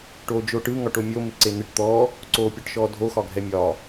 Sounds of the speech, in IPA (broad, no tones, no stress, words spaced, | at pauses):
ʈoːd͡ʒoːʈɯ ŋɒʈomʲo mɪǀen̪ɪʈ t̪ɔː | ǀoːpʲɔʈʃɔːdʱo xɒɡʱɛmʲɒː